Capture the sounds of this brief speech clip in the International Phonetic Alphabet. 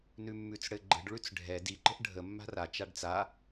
nʉmːʉt͡sɽɘɡ͡ǃə̤ɖ ɭʉt͡sɖʱɛ di ǃə̤ʔɖʱə mːa̤ra t͡ʃaɖt͡sa

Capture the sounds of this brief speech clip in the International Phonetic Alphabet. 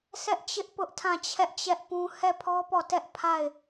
sʰɛ˦ʔt͡ɕɪ˦ʔ pʊ˦ʔtʰã˦˨t͡ɕʰɛ˦ʔ t͡ɕɛ˦ʔpũ˦ hɛ˦˨pʰɔ˦pɔ˦˨tɛ˦ʔ pʰa˦˨ɪ̯

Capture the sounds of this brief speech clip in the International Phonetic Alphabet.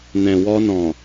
nɛ̃˨wɔ˧nɔ̃˨

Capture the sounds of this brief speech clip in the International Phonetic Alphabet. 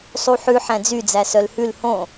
sˤuħʉ ħæ̃d͡zyd͡zæ sœlhʉl hõ

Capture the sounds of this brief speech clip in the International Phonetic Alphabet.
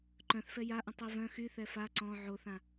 ǃœ̃θfɛ jaʔə̃ tˤivœ̃ xyθɛ fa ǀɔ̃ ʕoθã

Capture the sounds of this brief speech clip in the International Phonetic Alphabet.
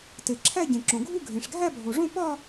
te˩ǁʰæ˥˧ ɟẽ˩ ǁõ˩ɡʱu˥˧ ɡʱẽ˩ʂɡʱæ˥˧bʱo˩ʐõ˥˧ pɒ˥˧

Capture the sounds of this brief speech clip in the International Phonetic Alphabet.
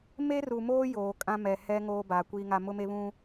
me˦ru˨moː˦ joː˨ kʼã˦mɛ˨ hɛ˦ ŋoː˦baː˨ kʷiː˦ŋa˦ mʊ˦me˦βũ˦

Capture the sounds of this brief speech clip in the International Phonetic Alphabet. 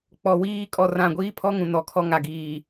k͡pɔ˨wiː˦ kʼɔ˦˨rã˦˨ ɡʷiː˦pʰɔ˦ŋũ˨ nɔ˨˦kʰɔ˦ ŋa˨ɡiː˨

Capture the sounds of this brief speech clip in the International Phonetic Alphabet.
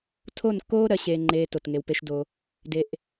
tʰo˦˨nkːoː˦ ɾɜ˦ɕeː˦ŋ͡ǃeː˦ to˨tŋe˧wpe˦ʃ do˦ | de˧ʔ

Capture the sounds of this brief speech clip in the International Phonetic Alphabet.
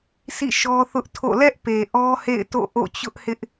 sḭ˦˨ʃɔ˦θʊ˦ʔtʰo̰˦˨ lɛ˦ʔpe˨ ʔɔ˦hḛ˦˨ɪ̯ to̰˦˨ ʔo̰˦˨ t͡ɕʊ˦ʔhɪ˦ʔ

